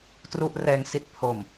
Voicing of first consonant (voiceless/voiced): voiceless